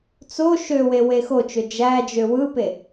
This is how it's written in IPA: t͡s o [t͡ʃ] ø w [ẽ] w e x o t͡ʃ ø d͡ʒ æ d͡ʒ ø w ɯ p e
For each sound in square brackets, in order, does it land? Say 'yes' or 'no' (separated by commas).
no, no